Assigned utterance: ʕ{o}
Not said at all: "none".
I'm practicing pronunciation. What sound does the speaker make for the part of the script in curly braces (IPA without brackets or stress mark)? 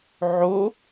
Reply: o